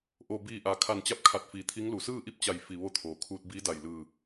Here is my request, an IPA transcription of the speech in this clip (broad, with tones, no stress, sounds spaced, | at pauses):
ʔ o˧˩ b iː˧˩ ʔ a˩ kʰ a˧˩ n t͡ɕ a˧˥ p̚ kʰ a˧˩ t̚ f iː˧˩ t̪ʰ i˧˥ ŋ l u˩˧ s ɯː˥˨ ʔ i˥˨ p̚ t͡ɕ a˧˩ j f i˧˩ ʋ o˧˥ t̪ʰ oː˩ kʰ uː˧ t̚ b iː˧˥ d a˧˩ j l ɯː˧˩